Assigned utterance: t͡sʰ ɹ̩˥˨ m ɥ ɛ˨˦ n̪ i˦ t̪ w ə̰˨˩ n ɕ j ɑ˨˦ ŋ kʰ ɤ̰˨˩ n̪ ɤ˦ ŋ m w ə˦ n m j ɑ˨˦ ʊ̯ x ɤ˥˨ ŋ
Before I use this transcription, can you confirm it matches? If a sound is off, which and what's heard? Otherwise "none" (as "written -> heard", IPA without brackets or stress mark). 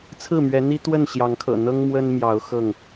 ə̰˨˩ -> ə˥˨